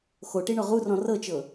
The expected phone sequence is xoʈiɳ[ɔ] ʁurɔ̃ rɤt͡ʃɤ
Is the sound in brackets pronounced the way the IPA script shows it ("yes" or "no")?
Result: yes